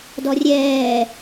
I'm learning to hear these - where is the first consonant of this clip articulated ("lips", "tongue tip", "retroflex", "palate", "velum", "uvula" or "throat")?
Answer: tongue tip